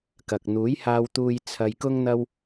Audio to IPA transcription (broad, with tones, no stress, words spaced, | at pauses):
kɐ˨k̚ n̪uː˨˥jhaː˧wt̪uː˧j t͡sʰɐ˧j kʊ˥ŋn̪ɐ˥w